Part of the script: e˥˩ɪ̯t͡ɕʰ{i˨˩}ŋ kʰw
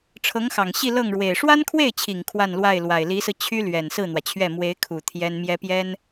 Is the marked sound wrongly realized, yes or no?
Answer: no